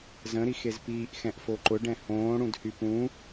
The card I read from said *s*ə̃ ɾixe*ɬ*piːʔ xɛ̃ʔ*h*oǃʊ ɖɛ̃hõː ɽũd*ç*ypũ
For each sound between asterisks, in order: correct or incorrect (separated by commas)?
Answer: incorrect, incorrect, incorrect, incorrect